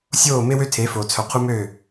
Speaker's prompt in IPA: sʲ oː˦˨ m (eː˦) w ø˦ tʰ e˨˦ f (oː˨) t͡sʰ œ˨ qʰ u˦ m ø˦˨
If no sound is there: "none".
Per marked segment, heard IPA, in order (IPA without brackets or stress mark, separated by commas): e˦, oː˨